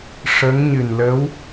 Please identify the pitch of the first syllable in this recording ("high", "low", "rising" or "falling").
rising